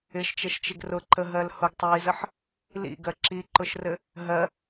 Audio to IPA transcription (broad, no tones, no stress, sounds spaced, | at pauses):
ɪ ʃ t͡ʃ ə ʃ t͡ʃ ɪ ɡ r ʊ ǃ ə ɦ ɜ l h ʊ ɡ tˤ iː z ə ħ | l ḭ ɡ ɜ ǁ i ǃ ʊ ʃ r ɘ | ɦ ɜ